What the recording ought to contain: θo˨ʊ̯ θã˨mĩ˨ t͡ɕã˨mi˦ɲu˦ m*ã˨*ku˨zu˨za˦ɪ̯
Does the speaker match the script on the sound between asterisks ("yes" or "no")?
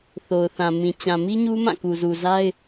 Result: no